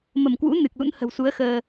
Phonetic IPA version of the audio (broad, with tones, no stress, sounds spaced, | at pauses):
m ə˧˩ m k w ṵ˧˥ n ɨ˨˩ k̚ l ṵ˧˥ n h ə̤˨˩ w s u˨˦ ə̯ x əː˧